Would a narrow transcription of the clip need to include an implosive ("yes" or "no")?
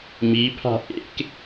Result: no